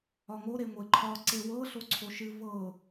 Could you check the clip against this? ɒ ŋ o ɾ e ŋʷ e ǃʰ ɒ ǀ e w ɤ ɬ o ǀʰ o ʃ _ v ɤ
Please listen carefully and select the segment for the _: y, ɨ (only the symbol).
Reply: ɨ